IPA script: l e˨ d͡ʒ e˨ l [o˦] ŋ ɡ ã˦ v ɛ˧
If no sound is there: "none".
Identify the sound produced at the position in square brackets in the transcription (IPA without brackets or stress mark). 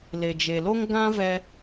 o˦